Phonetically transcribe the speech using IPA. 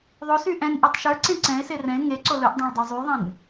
ðˤ o s y ʔ ɛ̃ n ʔ e tˤ ʃ ə˞ ǀ ẽ ǀ ɛ̃ e̯ s e r ɛ̃ e̯ ŋ e ǀ o l ɵ ʔ dˤ ẽ ɭ dˤ e zˤ y ðˤ ẽ n

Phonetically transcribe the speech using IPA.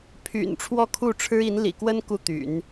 pʰ y̰˨˩ n ʈ͡ʂʰ w ɔ˥˧ kʰ u˥˩ ʈ͡ʂʰ ɻ̩˥ i˧˥ n l ḭ˨˩ k w ə˥ n k u˥˩ t̪ y̰˨˩˦ n

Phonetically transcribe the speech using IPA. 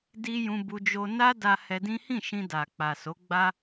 d i˧ j ũ˧ b u˧ d͡ʒ o˧ n a˦ d a˧ h ɛ˧ d ĩ˦ h ĩ˦˨ ʃ ĩ˧ d a˨ k͡p a˨ s o˨˦ ɡ͡b a˦

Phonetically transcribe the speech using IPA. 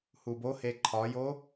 h u b o h e ǃʰ ɒ j o

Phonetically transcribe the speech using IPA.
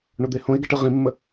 ɳ o d̪ e h õ e̯ ɡ ɛ ʈ ɯ ʁ ĩ mː ə

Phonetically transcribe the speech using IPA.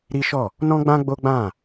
ɾ i˦ ʃ ɔ˦˨ | n ɔ̃˦ ɡ͡b ã˦ ɡ͡b o˦ ɡ͡b ã˦˨

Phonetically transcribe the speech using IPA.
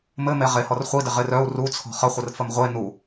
m ɘ m e ʁ e h ɔ r χʷ i d ɪ ʁ ɪ r œ u̯ r u t͡sʰ ɔ̤ χ ə χʷ ɘ r f ə m ʁʷ e n u

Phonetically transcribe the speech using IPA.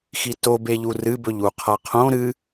x i t o b e ʎ u r ɨ b ɵ ʎ u qʰ a qʰ õ ɾ ɨ

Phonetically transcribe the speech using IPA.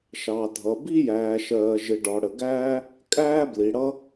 ʃ ɑ˩ dʱ ʌ˩ b i˥ j æː˩ ʃ ɜː˩ ʒ ɪ˩ ɖ ɒ˩ ɽ ə˩ ɡ æː˥ | kʼ æː˥ b l i˩ ɽ ʌ˥

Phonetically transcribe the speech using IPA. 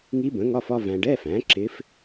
ŋ i˧˥ b ə̃˩˥ ŋ ɒ˧˥˧ f ɒ˥˧ v æ̃˨ ɖ ɛ˧˥˧ f æ̃˩˥ ǁ ɪ˧˥ f

